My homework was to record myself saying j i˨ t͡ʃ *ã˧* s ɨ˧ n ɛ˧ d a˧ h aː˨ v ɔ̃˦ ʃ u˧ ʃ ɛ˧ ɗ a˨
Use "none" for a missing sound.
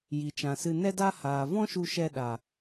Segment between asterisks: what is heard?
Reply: ã˨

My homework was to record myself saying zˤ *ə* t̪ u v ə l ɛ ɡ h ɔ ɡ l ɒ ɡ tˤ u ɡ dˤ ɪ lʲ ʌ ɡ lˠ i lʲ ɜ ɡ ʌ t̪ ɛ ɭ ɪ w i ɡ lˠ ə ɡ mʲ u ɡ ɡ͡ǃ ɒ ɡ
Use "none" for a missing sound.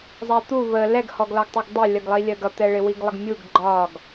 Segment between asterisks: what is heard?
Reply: æ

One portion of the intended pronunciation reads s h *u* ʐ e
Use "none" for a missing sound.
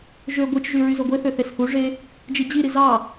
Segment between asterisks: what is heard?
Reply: u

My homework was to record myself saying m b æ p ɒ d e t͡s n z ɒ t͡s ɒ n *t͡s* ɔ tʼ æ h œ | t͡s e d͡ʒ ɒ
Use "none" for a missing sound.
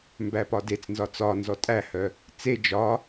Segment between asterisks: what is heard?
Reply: z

